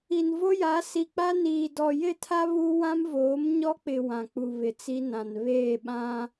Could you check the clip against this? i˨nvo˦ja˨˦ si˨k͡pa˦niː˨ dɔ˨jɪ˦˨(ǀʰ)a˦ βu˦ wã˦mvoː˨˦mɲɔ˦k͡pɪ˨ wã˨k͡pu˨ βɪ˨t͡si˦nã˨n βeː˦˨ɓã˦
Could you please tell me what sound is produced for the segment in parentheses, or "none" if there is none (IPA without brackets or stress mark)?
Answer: tʰ